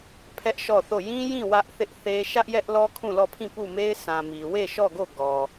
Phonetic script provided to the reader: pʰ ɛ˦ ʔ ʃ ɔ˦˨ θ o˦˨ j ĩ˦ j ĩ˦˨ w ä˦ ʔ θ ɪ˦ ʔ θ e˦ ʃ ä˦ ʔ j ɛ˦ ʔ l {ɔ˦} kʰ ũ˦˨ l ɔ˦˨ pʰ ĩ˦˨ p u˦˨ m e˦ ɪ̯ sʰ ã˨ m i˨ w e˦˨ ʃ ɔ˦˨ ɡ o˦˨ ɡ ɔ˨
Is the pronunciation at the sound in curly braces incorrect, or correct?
correct